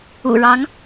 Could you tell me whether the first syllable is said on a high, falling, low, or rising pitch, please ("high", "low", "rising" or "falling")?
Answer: low